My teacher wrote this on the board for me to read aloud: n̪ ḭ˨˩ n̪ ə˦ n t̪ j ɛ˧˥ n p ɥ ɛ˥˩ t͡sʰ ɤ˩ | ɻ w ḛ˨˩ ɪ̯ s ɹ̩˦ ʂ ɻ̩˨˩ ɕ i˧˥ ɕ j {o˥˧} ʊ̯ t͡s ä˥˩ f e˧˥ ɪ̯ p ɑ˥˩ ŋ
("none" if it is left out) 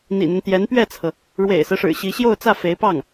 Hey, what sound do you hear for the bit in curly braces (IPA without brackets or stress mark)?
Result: o˥˧